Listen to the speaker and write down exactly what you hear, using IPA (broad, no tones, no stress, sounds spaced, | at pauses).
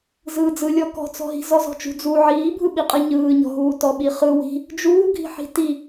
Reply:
z ɯː d͡z ɯ lʲ ɔ k ɔ̤ t͡s ɔ̤ ɦ i̤ z ɔ z ɔ̤ t͡ʃ ṳ d͡z u ʕ iː bʱ ɯ ɓ i qʼ ə ɲ ɯː ɲ ɔ̤ ɦ uː t ɔ ɓ i χ ɯ w i̤ | d͡ʒ uː ɡʱ i̤ ħ i̤ t i